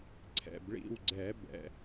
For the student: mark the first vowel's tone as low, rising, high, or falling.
low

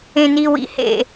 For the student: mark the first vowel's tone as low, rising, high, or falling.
low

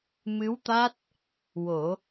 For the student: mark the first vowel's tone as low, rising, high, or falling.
rising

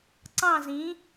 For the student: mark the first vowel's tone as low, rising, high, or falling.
falling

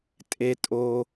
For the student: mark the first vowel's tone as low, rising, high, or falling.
low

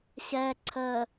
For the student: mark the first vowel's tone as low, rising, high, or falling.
low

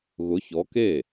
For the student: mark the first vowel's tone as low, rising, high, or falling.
rising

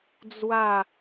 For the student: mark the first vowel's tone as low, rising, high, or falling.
falling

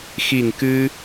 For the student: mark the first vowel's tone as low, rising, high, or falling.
low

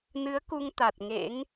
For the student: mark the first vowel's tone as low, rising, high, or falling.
rising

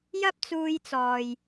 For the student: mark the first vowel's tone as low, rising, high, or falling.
high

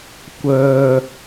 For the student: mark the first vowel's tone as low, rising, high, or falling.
low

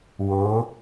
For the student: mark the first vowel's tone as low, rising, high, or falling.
rising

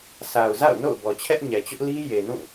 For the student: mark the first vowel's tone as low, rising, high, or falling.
low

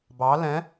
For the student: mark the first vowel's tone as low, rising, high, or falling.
rising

